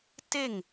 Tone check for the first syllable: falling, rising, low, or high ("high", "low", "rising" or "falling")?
falling